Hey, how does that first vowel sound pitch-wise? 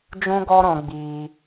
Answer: high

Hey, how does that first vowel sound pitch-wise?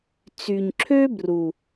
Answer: low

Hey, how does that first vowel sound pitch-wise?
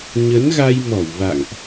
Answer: rising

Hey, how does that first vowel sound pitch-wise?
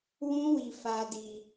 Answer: high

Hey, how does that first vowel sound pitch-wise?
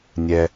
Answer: low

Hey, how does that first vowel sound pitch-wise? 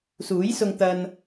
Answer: rising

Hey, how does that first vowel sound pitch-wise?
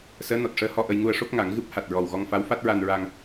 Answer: rising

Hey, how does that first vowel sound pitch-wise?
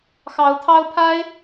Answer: rising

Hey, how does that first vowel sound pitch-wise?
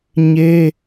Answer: high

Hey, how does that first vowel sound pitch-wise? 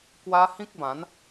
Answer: high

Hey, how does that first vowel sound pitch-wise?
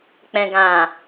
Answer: low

